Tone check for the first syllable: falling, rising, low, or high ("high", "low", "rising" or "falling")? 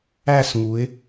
falling